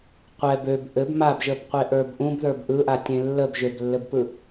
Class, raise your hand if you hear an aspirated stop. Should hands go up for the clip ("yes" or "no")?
no